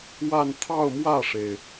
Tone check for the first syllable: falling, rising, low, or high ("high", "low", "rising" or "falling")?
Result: falling